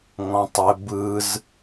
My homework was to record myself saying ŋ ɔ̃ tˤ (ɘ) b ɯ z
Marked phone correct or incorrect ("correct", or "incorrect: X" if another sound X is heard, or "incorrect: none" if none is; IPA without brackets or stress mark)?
correct